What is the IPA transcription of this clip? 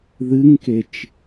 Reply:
ð ɨ ŋ k e t͡ʃ

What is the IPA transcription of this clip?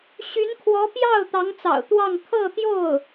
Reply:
ɕ y˧˥ n kʰ w ɔ˧˥ p j ɑ˥˩ ʊ̯ t̪ ɑ˧˥ ŋ t͡s ɑ̰˨˩ ʊ̯ t̪ w ɑ˥˧ ŋ kʰ ɤ˥˧ t̪ j o˥˩ ʊ̯

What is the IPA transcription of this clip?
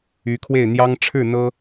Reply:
y˧˥ kʰ w e˥˩ ɪ̯ n̪ j ɑ˥ ŋ ʈ͡ʂʰ ɻ̩˥˩ n̪ ɤ˥

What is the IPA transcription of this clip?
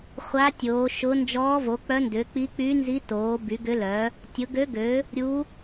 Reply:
χʷ a˧˥ tʲ oː˩˥ ʃ ʊ˧˥ n d͡ʒ ɔː˧˥ v o˩˥ k͡p œ˧˥ n d ʏː˩˥ k͡p i˧˥ k͡p y˧˥ n z i˧˥ t oː˩˥ b y˩˥ ɡ ʏ˧˥ l œ˩˥ | tʲ ʊ˩˥ ɡ ø˧˥ ɡ ø˩˥ | ɾʲ u˧˥

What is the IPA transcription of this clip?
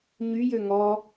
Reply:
ɲ y j ø ŋ ɔ

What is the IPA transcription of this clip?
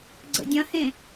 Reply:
ɡ͡ǀ ə̰ dʲ ɐ̃ h ẽ

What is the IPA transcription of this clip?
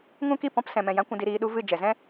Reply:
ŋ ũ˦ k i˦˨ p ɔ̃˦ p s ɛ̃˨ m ɛ̃˨ j ã˧ kʷ ũ˨ d i˨ ɾ iː˧ ɗ u˦ v ɨ˦˨ d͡ʒ ɛ˨ z ɛ̃˦

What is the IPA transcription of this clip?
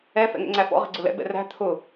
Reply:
ɛ f ɛ̰ ŋ ɛ̰ ŋ͡ǀ æ f ɔ̰ ʁ ɛ̤ ɡ͡ǀ ʊ l ɛ̰ b ɛ̰ r æ̤ t̪ʰ ʊ

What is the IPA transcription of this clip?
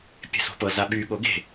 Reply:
pʲ e̤ s o̤ p ɤ z a ɓ y ɠ o ɡ e̤

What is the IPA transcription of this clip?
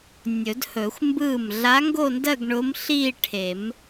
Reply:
nʲ ɵ˨˩˦ d h ɵ˨˩˦ xʷ m b ɯː˥˩ m ɮ a˧˥ ŋ ɡ o˥˧ n d ɜ˥˧ ɡ ɳ ʊ˧˥ m ɬ iː˥˧ ʈʰ e˨˩˦ m

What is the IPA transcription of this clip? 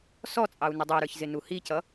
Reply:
s ɔ t͡sʼ ɑ u̯ n ə dˤ ə˞ ɾ ə˞ ç z ɪ n u h i c ʌ

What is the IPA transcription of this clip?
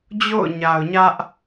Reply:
d͡ʑ o̰˦˨ ʊ̯ ɲ a˨ ʊ̯ ɲ ä˦ ʔ

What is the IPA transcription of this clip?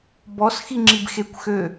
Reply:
b ɔ s x i ŋ͡ǁ i b x e kʷ x ø

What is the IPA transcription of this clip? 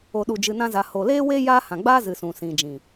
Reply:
o˨ ɗ u˨ d͡ʒ ɨ˨ n ã˧ z a˨ h o˨ l eː˦ w e˦ j aː˦ h ã˨ ɡ͡b aː˦ z ɨ˨ s ũ˨ s ĩ˨ d͡ʒ ĩ˨

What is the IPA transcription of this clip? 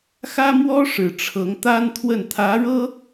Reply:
x ä˥ m w ɔ˥ ʂ ɻ̩˨˩ ʈ͡ʂʰ ɤ˧˥ ŋ t̪ a˥ n t̪ʰ w ə˥˩ n t̪ʰ ä˧˥ ɻ ɤ˥

